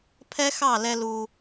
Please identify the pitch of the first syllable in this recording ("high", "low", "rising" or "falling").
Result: high